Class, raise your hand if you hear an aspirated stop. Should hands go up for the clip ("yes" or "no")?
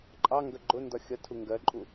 yes